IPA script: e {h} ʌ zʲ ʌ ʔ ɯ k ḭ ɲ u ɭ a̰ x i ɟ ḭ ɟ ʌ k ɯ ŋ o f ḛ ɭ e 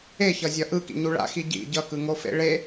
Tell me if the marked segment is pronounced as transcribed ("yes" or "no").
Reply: no